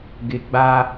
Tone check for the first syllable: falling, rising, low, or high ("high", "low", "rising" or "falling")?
low